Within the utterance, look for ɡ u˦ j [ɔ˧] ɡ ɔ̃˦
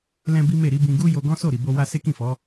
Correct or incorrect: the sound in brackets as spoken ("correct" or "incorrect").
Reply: incorrect